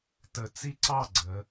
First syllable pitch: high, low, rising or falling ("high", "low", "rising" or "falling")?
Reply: low